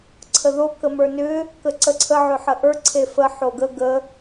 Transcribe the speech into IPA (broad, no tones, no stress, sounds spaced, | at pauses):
ǀʰ ə ð o k ə m ə˞ n ʏ | k ə ǀ ə ǀʰ ə ʕ ʏ ħ ə ʔ ə˞ ǀʰ e f ə ħ o ɡ ə ɡ ə